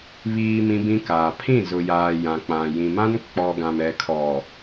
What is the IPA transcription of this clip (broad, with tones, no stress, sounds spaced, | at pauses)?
β iː˨ m ĩ˦ b ĩ˦ k aː˨ pʰ ĩ˦˨ z ʊ˨ j aː˨ j ã˨ k͡p ã˨ j ĩ˨ m ã˦ n k͡p ɔ˨ ɡ ã˨ m ɛ˨ kʰ ɔ˨